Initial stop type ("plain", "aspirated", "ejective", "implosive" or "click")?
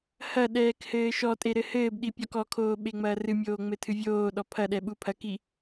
implosive